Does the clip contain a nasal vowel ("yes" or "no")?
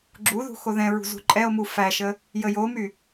yes